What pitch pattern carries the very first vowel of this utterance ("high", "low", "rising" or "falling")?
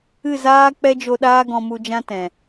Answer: falling